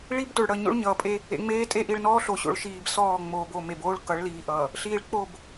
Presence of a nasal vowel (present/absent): absent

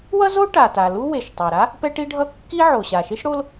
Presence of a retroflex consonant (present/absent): present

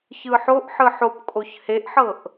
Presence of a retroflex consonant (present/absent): absent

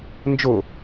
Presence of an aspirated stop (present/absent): absent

